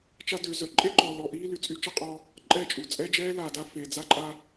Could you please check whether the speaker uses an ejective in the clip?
yes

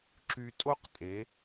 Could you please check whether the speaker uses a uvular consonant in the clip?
yes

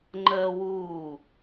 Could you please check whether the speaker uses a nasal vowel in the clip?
no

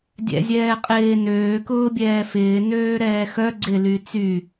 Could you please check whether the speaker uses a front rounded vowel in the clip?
yes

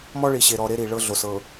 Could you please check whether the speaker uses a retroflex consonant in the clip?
yes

